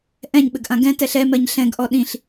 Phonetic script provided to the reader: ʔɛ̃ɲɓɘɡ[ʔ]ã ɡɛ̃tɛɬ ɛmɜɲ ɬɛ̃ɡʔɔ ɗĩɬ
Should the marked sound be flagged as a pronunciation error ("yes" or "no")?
no